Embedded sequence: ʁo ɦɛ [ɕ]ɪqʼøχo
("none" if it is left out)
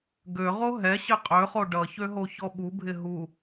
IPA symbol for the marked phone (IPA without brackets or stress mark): ɕ